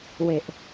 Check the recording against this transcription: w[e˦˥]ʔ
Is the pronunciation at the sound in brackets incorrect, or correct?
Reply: incorrect